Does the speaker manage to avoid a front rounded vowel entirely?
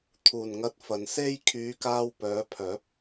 no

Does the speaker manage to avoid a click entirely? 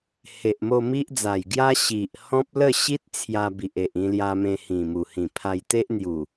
yes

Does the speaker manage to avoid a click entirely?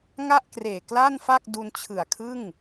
yes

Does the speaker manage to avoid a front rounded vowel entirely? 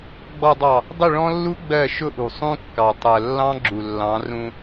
yes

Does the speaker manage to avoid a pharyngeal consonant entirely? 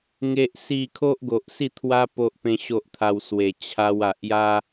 yes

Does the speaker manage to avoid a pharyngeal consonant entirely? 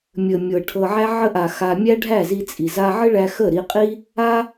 no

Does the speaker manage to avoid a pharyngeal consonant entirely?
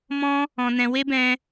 yes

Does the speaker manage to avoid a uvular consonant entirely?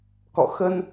yes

